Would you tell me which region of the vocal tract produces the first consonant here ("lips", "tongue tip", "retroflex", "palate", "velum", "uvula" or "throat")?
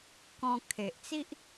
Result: velum